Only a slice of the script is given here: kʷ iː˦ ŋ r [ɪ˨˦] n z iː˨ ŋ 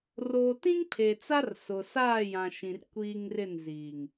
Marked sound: incorrect: ɪ˦˨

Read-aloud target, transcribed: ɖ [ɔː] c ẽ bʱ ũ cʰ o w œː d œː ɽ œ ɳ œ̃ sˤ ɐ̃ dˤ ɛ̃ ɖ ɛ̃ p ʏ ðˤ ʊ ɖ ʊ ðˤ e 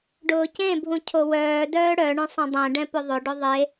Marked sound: incorrect: ʊː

